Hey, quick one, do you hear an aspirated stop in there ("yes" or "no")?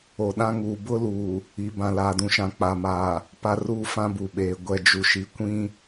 no